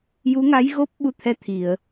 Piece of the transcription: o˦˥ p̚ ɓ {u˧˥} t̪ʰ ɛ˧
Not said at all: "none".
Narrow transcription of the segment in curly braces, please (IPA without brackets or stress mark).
u˧